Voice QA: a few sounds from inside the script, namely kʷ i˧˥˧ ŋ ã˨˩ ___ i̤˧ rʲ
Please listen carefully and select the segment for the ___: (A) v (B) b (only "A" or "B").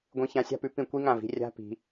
A